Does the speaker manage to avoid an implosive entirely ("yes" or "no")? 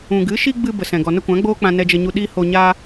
no